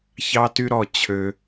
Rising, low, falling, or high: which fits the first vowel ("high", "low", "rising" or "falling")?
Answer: high